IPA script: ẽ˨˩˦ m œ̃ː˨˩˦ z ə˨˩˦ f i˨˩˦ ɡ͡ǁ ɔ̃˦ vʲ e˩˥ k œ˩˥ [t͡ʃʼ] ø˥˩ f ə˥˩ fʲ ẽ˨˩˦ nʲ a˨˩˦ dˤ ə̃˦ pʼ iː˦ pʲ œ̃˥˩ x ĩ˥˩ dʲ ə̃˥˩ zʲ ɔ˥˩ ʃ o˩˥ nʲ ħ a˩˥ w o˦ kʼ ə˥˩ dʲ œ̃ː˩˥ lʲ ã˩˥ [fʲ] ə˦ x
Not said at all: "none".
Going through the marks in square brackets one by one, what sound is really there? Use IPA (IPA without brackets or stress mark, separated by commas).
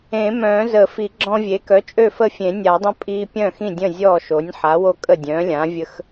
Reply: t͡ʃʼ, vʲ